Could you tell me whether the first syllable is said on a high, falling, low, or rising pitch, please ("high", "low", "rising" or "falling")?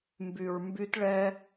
low